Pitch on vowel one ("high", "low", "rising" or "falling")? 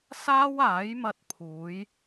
high